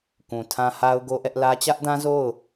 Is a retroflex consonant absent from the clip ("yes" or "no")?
yes